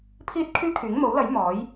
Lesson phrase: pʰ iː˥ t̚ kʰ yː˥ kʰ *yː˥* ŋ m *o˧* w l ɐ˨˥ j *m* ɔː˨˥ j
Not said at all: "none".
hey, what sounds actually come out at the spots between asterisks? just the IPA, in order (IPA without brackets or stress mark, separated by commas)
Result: yː˨˥, o˨˥, m